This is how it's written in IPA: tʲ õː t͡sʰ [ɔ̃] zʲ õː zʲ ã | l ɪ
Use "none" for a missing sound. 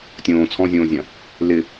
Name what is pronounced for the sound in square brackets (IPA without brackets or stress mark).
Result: ɔ̃